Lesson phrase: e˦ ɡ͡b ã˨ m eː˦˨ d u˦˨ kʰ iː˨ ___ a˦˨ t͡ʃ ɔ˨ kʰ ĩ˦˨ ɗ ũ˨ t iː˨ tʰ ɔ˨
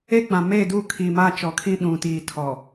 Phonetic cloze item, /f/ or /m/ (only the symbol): m